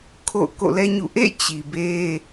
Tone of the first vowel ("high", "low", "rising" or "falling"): falling